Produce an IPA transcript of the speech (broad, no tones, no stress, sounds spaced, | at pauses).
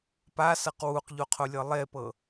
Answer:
p a s ɤ q w u q ʎ o qʰ o lʲ ɤ lˠ e p ɤ